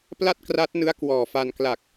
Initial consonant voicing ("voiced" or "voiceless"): voiceless